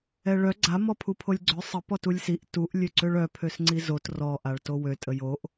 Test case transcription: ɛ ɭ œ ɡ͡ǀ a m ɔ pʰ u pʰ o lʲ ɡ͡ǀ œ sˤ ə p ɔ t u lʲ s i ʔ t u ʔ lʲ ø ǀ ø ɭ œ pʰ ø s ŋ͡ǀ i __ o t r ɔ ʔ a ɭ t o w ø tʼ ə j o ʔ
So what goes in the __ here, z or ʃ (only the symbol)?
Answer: z